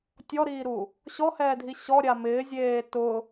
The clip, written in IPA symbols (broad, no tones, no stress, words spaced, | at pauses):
tʲɔɾiːɾu | ɕɔhɛːdʱi ɕɔɾʲa mɪːzʲeː tʊ